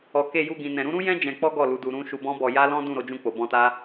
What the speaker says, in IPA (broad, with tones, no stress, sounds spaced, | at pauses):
ɔ˨ k e˧ j u˧ ɡ ĩ˨ n ɛ̃˨ ɾ ũ˨˦ ɾ ũ˦ j ɛ̃˦ d͡ʒ ɛ̃˧ k͡p ɔ˦ ɡ ɔ˦˨ l u˨˦ d u˧ ɾ ũ˦ ʃ u˧ b ɔ̃˦ b ɔ˧ j a˦ l ɔ̃˦ d ũ˦˨ ɾ o˧ d͡ʒ ũ˧ k͡p o˨ b ɔ̃˧ t a˦